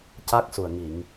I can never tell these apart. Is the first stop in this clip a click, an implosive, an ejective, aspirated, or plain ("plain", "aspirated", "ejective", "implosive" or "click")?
plain